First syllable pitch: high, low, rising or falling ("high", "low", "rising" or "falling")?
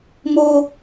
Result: high